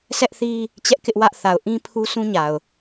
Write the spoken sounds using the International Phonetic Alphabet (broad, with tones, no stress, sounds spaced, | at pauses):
s ɛ˦ ʔ θ i˦ | t͡ɕ ɛ˦ ʔ k ɪ˦ ʔ w ä˦ ʔ θ a˨ ʊ̯ ʔ ĩ˦ pʰ u˦ sʰ ũ˦ ɲ a˨ ʊ̯